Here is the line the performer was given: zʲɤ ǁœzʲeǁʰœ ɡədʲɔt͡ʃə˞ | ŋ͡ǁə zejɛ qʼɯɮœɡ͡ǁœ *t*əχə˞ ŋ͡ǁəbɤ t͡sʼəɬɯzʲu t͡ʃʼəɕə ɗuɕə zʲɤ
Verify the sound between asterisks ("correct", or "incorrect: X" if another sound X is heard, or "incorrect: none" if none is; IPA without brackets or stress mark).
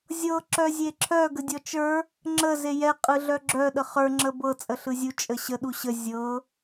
incorrect: ɗ